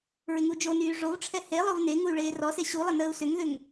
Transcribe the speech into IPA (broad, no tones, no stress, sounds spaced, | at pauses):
ɹ ɪ ŋ u d͡ʒ o n yː ʐ o v ʈ͡ʂʰ ɛ h e lˠ o v n e ŋ u y̯ ɭ eː r ɔ s e ɕ u lˠ ə n əː u̯ s ʏ ŋ ð ʏ ŋ